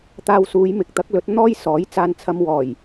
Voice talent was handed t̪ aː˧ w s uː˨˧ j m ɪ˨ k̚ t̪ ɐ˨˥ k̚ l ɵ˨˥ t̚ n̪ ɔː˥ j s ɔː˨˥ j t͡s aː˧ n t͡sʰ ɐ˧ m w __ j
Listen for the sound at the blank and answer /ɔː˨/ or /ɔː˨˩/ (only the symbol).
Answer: ɔː˨˩